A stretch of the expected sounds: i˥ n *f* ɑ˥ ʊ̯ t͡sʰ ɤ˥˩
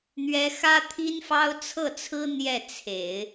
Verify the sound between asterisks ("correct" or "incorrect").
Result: correct